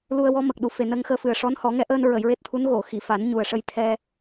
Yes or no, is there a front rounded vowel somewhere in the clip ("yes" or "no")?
no